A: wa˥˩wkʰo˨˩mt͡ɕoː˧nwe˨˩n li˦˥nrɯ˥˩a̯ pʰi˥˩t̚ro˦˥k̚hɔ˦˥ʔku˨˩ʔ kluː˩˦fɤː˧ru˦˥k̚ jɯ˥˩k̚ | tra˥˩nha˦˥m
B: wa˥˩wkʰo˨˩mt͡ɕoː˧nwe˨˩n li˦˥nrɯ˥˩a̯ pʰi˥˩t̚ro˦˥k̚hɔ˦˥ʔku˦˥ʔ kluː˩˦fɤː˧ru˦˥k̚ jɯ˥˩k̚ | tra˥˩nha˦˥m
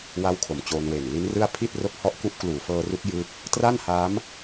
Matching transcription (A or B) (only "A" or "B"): B